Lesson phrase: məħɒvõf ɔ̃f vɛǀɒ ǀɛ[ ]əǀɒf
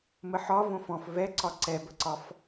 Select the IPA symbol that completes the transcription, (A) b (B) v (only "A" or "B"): A